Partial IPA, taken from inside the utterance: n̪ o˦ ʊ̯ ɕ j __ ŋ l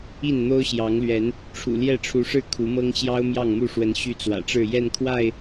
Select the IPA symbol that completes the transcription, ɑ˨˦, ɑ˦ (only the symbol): ɑ˨˦